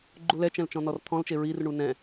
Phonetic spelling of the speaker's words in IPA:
ɡ͡ǃ u l ɛ t͡ʃ ɛ̃ l t͡ʃ ɔ̃ n ɔ r t̪ʰ ɔ̃ l t͡ʃ e ɹ i r ɳ u n ɛ̃

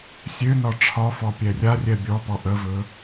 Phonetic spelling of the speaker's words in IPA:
sʲ ø n ɒ ʈ͡ʂʰ ɒ f ɔ pʲ ɛ rʲ a rʲ ɛ bʲ ɔ p ɔ ʔ ə v ɵ

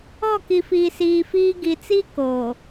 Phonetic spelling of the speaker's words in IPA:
ɔ˦˨ k i˨ f iː˨ s iː˨ f iː˦ ɡ i˨ t͡s i˦ k o˨

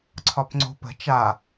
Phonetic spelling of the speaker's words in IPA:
ǀʰ ɒ p ŋ͡ǀ o̤ p ə̤ t͡ʃ a

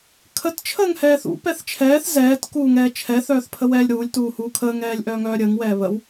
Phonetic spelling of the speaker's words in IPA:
kʰ ə t t͡ʃʰ əː ŋ h ɛː θ ṵ p ɛ θ t͡ʃʰ ɛː θ z ɛː t k uː ŋ ɛː t͡ʃʰ ɛ θ œː θ pʰ ə w ɛː lʲ ɾ uː lʲ t uː h uː kʰ əː ŋ ɛː lʲ ʔ œː ŋ œː ɾʲ əː ŋ w ɛː β ə w

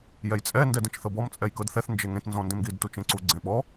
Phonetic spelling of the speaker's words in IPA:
j ɛ j t͡sʼ ɛ n d ɛ d ẽ t͡ʃ θ ɤ b ɔ m t͡sʼ ɛ j k ɤ d θ ɛ θ n d͡ʒ e ŋ ẽ t n z ɔ̃ n d ẽ m ɡ i d t u t͡ʃ ẽ ǀ u ɡ͡ǀ ẽ ɓ ɔ

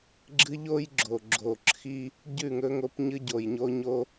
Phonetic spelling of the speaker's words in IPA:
ɡ͡ǁ ɨ˦ ʎ o˦ j ɡ͡ǁ o˨ ɡ͡ǁ o˨ ǁʰ i˦ | ɟ ʉ˦˨ ŋ ɵ˦ ŋ o˦ p ɲ ɨ˦ ɟ o˨ j ɲ o˦ ɲ o˦

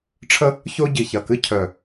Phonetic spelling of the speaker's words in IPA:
ʈ͡ʂʰ ə˥ | ç o˥ ɟ i˧˩ ç ɐ˧˩ k ɨ˥ cʰ œ˧˩

